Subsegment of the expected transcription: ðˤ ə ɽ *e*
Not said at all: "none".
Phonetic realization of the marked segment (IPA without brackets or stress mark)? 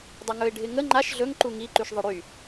y